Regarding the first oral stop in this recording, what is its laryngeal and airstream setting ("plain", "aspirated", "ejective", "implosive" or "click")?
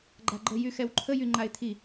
click